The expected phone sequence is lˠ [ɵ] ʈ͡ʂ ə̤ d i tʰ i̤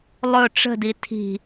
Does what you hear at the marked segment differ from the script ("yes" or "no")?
no